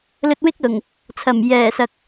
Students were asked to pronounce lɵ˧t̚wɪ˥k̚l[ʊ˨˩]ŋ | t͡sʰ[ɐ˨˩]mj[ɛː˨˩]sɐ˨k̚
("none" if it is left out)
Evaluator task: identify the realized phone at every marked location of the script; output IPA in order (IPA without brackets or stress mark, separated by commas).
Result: ʊ˨˩, ɐ˨˩, ɛː˨˩